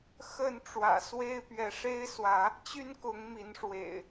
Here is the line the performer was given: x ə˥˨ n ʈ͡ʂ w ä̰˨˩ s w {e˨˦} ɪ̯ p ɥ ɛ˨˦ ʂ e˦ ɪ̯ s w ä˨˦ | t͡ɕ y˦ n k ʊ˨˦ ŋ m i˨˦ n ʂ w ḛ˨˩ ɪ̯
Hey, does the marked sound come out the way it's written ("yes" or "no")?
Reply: no